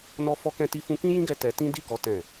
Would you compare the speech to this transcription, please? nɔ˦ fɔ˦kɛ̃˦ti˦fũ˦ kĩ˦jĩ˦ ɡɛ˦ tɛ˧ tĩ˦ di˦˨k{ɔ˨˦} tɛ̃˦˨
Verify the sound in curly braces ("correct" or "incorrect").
correct